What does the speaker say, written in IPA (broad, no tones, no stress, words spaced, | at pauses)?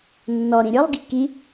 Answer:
nːɔ ɾĩɾʲɯlˠ ɡiki